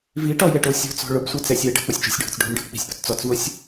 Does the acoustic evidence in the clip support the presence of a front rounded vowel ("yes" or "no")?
no